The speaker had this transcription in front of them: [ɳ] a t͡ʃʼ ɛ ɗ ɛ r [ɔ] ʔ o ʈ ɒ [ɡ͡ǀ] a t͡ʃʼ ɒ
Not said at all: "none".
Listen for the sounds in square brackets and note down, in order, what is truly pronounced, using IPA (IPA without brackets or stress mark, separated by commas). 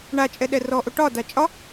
ɳ, ɔ, d